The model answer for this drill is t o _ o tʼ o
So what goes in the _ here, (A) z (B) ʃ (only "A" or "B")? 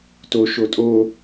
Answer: B